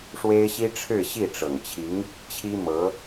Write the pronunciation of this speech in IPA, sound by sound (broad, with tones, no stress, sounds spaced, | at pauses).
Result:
ʂ w e˥ ɪ̯ ɕ i˥ ʈ͡ʂʰ ɻ̩˥˧ ɕ i˥˩ ʈ͡ʂ ɤ˨˩ ŋ t͡ɕʰ i˧˥ ŋ | t͡ɕʰ i˥ m ɤ˧˥